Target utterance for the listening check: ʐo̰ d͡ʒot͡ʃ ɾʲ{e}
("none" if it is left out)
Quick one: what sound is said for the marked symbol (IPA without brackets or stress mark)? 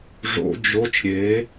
e